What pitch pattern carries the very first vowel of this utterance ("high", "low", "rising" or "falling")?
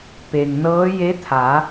low